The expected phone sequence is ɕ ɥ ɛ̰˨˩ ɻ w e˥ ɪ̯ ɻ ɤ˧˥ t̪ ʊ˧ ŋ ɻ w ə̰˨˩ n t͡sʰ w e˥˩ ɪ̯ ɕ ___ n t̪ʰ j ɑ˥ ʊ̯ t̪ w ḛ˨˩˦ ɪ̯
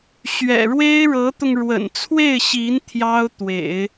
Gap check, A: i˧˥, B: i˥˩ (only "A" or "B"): A